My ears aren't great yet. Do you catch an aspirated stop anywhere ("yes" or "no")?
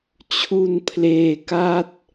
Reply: yes